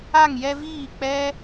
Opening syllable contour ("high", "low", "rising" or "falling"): falling